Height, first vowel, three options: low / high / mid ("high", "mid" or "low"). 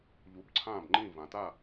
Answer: high